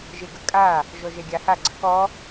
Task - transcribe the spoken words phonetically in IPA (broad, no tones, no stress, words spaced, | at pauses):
ʒeɡəkʼa | ʒɔʒɛɡʲaha ɡ͡ǀəkɔ